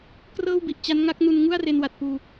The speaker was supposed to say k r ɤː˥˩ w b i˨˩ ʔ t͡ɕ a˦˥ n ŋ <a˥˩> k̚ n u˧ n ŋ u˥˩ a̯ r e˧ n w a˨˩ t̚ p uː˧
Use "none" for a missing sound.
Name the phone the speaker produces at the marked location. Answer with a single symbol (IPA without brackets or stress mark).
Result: a˦˥